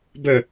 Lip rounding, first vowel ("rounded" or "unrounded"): unrounded